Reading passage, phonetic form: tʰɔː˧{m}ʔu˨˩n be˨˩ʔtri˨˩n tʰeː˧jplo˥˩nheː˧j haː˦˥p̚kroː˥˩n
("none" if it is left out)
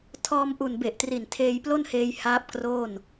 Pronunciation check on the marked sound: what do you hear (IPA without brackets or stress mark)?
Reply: m